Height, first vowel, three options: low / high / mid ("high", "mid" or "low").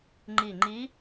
high